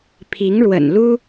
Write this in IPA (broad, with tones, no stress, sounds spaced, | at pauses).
pʰ i˧˥ ŋ ɻ w ə̰˨˩ n l u˥